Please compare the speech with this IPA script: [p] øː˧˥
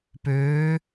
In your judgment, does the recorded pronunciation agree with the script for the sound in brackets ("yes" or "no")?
yes